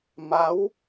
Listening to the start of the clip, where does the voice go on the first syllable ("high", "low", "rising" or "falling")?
rising